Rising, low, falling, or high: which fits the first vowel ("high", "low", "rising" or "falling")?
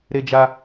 high